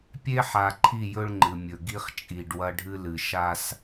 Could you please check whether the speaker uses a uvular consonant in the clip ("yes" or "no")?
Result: yes